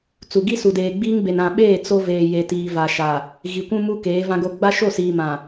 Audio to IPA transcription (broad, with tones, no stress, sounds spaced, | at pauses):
t͡s u˨ ɡ i˦ s u˨ d eː˨ ɡ͡b iː˦ ŋ b e˨ n ã˨ ɓ eː˦˨ t͡s o˦ v eː˨ j e˨ t iː˨ v a˨ ʃ a˨ | ɣ i˨ kʷ ũ˦ m u˦ k eː˨˦ v ã˦ ɡ o˦˨ ɡ͡b a˦ ʃ o˦˨ s iː˨ m ã˨